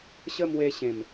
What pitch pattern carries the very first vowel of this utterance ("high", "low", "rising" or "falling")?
high